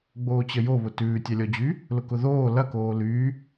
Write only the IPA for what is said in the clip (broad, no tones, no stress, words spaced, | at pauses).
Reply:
ɡ͡boːt͡ɕəjoβʊ tʉːtʲalʲɔd͡ʑy | lʊkʊðoː lɐ koːlyː